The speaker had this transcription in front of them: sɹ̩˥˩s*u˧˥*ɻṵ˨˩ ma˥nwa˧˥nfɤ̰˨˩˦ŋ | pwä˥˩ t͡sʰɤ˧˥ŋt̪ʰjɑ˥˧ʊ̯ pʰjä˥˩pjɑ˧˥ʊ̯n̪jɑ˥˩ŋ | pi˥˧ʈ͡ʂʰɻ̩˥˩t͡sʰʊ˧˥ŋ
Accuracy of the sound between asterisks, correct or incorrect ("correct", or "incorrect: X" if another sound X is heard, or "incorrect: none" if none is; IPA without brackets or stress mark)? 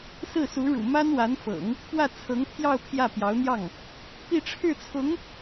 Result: correct